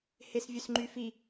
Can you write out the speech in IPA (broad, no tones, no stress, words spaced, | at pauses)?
hesvʲøsŋ͡ǃyfi